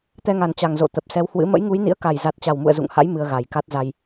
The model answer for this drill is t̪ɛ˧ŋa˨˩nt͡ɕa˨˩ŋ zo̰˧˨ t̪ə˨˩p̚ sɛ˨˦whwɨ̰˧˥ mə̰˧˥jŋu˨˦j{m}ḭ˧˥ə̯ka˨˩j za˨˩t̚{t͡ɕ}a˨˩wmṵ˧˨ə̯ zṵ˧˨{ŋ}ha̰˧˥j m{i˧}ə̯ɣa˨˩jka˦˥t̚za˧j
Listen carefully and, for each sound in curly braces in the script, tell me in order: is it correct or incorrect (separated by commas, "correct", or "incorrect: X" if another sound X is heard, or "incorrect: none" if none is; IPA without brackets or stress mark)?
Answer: incorrect: n, correct, correct, incorrect: ɨ˧